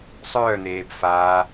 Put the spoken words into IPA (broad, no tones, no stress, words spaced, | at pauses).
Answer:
sˤœːn̪eːb faː